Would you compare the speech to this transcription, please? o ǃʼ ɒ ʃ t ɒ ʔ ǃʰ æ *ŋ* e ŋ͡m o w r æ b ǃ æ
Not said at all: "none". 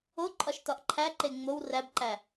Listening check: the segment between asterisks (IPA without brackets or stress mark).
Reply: ǃ